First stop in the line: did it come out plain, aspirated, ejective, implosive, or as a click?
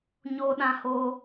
implosive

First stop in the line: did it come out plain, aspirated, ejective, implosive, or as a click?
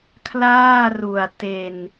aspirated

